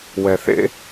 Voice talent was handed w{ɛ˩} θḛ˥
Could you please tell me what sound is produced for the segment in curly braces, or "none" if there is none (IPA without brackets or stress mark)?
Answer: ɛ˩